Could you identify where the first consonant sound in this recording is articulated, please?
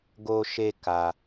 velar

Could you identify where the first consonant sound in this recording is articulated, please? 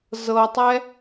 alveolar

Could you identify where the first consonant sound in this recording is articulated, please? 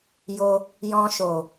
palatal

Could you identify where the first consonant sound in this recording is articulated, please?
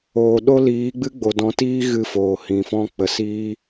alveolar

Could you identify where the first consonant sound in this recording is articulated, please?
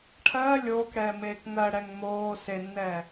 retroflex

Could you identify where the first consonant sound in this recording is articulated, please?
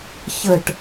palatal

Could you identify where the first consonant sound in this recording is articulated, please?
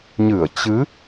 palatal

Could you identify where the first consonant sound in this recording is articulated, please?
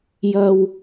palatal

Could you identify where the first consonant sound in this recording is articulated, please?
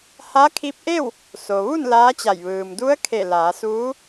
glottal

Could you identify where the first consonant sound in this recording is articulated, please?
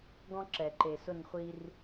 velar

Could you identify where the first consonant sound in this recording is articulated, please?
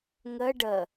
velar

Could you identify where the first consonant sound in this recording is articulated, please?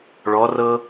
retroflex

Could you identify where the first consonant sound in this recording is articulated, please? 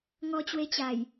velar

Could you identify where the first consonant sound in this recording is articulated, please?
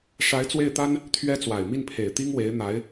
retroflex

